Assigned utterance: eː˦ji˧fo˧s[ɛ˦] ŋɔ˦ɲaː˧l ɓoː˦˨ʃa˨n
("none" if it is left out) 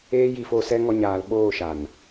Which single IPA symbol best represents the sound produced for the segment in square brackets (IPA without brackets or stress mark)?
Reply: ɛ˦